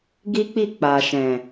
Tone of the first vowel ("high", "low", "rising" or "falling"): high